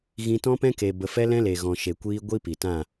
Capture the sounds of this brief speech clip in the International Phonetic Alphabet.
ɣ ĩ˧ t ɔ̃˦ p ɛ̃˦ k e˧ b ə˧ f ɛ˦ l ɛ̃˦ l e˨ ɣ ɔ̃˨ ʃ e˨ kʷ iː˧ ɡʷ i˦ p i˨ t ã˦˨

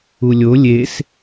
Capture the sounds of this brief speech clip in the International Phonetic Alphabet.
u lʲ o lʲ e s

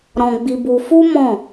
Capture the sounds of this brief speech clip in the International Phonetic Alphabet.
ɾ ɔ̃˧ ɡ͡b i˧ b u˧ f u˦ m ɔ̃˦˨

